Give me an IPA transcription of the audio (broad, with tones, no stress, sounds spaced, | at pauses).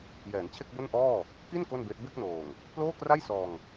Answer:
j ɛː˩˦ n t͡ɕʰ e˥˩ k̚ b o˥˩ n ʔ ɔː˥˩ | k i˥˩ n k o˥˩ n b e˦˥ ʔ b e˥˩ k̚ n oː˨˩ ŋ | p l oː˥˩ k r a˥˩ j s ɔː˧ ŋ